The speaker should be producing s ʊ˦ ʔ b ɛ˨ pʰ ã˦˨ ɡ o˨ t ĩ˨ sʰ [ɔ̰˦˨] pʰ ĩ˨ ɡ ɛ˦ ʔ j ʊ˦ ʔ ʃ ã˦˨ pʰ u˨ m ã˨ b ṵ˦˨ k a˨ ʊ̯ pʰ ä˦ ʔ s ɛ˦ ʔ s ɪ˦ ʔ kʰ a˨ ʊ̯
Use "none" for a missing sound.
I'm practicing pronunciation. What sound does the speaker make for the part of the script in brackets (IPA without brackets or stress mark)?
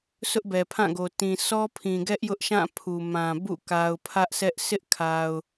ɔ˦